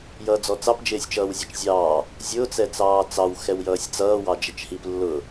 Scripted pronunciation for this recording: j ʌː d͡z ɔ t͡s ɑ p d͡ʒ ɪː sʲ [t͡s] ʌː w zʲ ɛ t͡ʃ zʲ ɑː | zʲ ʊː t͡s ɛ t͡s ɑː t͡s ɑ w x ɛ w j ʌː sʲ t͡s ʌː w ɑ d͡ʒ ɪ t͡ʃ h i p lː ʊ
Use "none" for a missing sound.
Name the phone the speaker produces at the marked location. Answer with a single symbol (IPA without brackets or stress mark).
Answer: t͡ʃ